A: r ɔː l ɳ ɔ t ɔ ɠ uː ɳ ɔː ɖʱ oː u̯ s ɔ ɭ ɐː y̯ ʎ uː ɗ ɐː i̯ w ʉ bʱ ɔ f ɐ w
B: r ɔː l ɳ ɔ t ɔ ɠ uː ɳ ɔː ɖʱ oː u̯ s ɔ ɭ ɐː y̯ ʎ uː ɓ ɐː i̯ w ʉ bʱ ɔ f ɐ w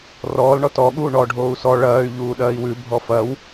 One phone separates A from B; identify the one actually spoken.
A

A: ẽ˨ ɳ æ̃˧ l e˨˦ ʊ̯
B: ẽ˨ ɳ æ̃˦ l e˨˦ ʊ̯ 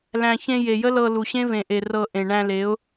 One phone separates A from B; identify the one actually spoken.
A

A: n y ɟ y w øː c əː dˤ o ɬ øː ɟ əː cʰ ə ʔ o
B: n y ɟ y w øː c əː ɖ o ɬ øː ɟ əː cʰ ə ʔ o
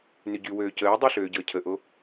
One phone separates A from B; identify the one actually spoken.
A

